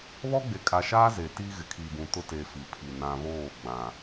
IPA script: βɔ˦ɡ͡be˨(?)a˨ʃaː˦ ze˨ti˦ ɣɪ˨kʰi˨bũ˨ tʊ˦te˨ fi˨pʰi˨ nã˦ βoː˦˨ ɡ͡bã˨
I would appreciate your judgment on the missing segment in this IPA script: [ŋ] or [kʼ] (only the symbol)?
kʼ